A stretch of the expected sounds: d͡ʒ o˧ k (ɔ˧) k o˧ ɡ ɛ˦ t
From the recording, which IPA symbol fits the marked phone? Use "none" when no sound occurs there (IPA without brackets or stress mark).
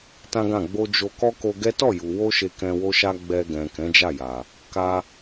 ɔ˦